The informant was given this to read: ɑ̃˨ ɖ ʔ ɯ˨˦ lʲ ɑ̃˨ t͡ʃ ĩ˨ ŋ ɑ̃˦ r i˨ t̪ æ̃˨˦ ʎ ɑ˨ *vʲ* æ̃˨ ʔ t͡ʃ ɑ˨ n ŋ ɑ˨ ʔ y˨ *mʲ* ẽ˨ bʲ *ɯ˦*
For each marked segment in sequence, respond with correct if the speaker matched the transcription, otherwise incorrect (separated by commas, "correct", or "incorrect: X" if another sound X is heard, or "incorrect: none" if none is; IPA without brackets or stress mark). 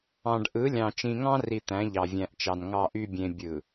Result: correct, incorrect: bʲ, incorrect: ɯ˨